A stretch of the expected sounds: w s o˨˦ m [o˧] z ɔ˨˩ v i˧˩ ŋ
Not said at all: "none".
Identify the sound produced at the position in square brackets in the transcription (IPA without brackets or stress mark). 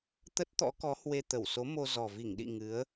o˧